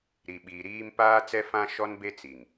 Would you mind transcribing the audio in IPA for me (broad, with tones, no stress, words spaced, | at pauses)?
ɾi˨ɓiː˨ ɾiː˦m paː˦t͡sɛ˦fã˦ ʃɔ˦nbe˦t͡si˨ŋ